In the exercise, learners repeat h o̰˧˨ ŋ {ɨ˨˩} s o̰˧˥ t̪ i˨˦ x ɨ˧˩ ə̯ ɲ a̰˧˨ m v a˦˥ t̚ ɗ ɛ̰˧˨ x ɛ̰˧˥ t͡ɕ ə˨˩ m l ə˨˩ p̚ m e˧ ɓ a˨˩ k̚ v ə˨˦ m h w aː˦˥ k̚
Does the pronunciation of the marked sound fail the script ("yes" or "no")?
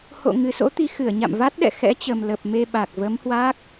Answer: no